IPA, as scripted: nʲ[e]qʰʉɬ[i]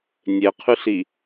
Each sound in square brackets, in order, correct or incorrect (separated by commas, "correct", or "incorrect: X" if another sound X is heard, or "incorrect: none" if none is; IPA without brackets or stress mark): correct, correct